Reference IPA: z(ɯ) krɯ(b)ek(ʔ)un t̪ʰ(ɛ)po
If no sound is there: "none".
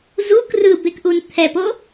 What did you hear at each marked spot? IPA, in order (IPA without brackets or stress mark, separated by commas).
u, b, ʔ, ɛ